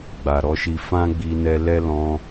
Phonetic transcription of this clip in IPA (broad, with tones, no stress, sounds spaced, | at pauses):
ɡ͡b a˨ ɾ ɔ˧ ʃ i˧ f ã˦ ɡ͡b i˧ n ɛ˧ l ɛ˦ l ɔ̃˧